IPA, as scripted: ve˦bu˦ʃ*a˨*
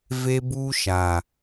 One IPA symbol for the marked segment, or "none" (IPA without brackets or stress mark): a˨